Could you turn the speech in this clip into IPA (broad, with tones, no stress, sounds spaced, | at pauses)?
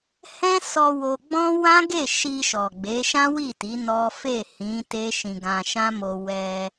h ɛ̃˦ s ɔ˧ w o˧ ɡ͡b ɔ̃˦ w ã˦ ɡ e˦˨ ʃ i˧ ʃ ɔ˨ ɡ͡b e˨˦ ʃ ã˦ w i˦˨ t i˨˦ n ɔ˦ f e˦˨ h ĩ˨˦ t e˦ ʃ ĩ˧ ɡ ã˧ ʃ ã˦ m o˧ w ɛ˧